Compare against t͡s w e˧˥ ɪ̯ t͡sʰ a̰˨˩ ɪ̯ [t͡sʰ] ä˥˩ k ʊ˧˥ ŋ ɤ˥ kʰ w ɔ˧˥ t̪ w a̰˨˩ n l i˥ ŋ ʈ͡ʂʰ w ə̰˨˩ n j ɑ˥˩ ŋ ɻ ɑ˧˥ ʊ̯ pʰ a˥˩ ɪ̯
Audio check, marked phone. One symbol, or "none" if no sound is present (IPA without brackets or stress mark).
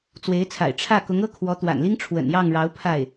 ʈ͡ʂʰ